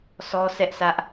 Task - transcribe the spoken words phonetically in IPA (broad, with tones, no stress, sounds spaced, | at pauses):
s ɔ˦ sʰ ɛ˦ ʔ s ä˦ ʔ